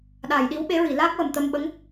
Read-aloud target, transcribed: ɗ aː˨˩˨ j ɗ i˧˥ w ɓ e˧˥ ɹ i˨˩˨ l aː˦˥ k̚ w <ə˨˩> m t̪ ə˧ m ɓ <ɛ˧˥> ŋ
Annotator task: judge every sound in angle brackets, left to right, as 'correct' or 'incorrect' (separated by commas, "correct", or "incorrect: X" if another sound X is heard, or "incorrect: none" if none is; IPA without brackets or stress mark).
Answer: correct, incorrect: ə˧˥